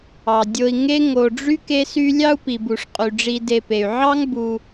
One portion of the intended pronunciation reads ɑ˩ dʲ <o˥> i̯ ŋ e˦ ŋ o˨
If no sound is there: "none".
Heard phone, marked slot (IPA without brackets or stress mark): o˨